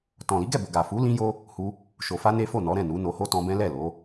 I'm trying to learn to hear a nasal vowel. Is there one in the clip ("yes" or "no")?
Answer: yes